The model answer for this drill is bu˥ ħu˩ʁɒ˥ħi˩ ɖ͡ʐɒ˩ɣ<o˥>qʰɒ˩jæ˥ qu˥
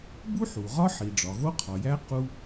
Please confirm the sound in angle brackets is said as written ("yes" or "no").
yes